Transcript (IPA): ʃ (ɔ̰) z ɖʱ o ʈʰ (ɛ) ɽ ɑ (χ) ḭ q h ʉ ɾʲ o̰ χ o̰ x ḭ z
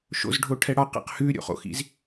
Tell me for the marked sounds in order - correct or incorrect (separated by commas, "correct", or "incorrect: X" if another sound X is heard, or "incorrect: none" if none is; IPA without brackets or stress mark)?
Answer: incorrect: o̰, correct, incorrect: q